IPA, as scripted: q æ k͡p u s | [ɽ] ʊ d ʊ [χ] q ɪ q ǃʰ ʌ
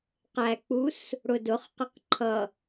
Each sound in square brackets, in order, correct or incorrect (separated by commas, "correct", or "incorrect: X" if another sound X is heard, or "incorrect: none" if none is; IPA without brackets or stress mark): correct, correct